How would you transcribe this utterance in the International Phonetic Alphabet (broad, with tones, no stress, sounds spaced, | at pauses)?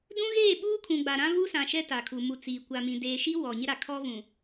d ũ˦ ɣ eː˦˨ ɓ uː˦ kʰ ũ˨ ɡ͡b a˨ ɾ ã˦ v u˦ s ã˨ ʃ ɛ˦ t a˨ kʰ u˨ m u˨ t͡s iː˨ kʷ a˨ m ĩ˨ d eː˨ ʃ i˦ w ɔ˨ ɲ ɪ˦ ɾ a˨ kʰ ɔ˦ v ũ˨